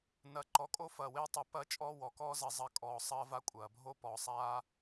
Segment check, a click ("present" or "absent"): present